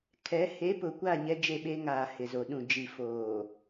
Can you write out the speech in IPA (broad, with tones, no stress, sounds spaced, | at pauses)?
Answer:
kʰ ɛ˨˦ h e˨˦ p ʊ˨ kʷ a˦˨ ɲ ɛ˦ d͡ʒ e˦˨ ɓ e˦ ŋ aː˨ h ɪ˨ z o˨ ɗ ũ˨ d͡ʒ i˨ f oː˨